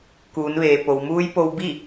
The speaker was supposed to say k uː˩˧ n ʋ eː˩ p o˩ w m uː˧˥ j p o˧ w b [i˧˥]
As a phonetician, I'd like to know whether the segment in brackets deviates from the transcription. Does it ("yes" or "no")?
yes